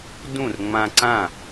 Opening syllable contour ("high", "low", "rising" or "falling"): falling